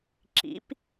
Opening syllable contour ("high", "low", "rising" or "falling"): rising